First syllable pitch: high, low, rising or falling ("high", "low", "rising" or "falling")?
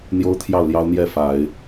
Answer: high